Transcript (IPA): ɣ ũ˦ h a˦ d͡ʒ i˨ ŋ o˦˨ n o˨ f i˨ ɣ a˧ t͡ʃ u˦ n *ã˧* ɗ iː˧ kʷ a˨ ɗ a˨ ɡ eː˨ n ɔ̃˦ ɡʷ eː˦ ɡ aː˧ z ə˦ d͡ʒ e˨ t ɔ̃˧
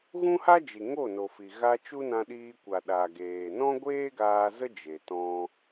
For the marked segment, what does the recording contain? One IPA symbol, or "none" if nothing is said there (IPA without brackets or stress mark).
ã˧